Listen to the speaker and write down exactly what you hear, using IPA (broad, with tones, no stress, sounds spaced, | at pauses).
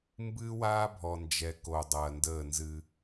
m b ɨː˦ w aː˦ bʱ ɔ˨ n d͡ʒ ɛ˨˦ k o˨ dˤ ɐː˨ n d əː˦˨ n z ɨ˦